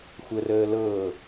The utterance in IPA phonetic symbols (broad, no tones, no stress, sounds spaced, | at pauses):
xʷ ə r əː l ɤ